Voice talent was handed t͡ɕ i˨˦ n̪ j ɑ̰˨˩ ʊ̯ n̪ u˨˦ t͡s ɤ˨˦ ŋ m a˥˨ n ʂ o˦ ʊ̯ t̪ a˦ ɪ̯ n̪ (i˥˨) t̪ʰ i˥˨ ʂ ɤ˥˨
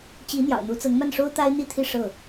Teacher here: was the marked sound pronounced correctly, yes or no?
yes